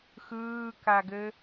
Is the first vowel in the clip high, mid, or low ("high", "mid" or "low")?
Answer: high